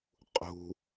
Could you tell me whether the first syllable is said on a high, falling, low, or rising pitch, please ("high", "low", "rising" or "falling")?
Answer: low